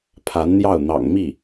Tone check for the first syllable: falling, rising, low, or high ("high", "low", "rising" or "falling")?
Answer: rising